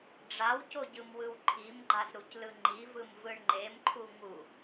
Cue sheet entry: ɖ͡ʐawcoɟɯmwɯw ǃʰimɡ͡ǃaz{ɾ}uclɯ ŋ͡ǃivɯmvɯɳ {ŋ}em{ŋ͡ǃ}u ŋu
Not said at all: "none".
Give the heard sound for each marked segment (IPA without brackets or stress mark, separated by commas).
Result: ɾ, ŋ͡ǃ, ǃʰ